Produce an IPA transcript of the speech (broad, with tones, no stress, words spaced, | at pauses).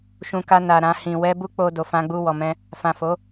ʃũ˧ka˧na˨ ɾã˧ hĩ˨ wɛ˧bu˦ k͡po˧do˨fã˧ ɡ͡bu˧wɔ˨mɛ̃˧ | fã˨fo˨˦